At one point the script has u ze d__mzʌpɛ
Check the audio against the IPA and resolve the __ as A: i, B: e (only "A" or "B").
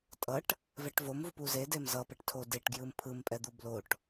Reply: B